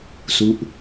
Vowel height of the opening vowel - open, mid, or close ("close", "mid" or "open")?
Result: close